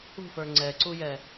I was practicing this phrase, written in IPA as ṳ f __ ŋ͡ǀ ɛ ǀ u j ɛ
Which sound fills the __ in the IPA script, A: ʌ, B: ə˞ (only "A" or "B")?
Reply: B